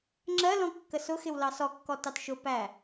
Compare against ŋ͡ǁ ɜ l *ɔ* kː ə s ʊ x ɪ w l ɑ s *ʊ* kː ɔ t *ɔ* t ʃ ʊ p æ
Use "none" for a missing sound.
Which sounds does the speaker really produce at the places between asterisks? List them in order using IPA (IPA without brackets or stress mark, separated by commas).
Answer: ɔ̃, ɔ, ɑ